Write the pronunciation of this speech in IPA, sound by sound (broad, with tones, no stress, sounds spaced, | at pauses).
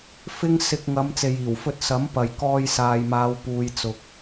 f ɪ˥ ŋ s ɪ˧ k̚ ŋ ɐ˨˧ m t͡s e˨ j iː˨˩ w f ɵ˧ t̚ s ɐ˨˥ m p ɐ˨ j k ɔː˧ j s aː˨ j m aː˨˧ w p uː˨ j t͡s ʊ˨ k̚